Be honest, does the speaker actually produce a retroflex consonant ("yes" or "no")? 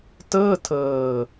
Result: no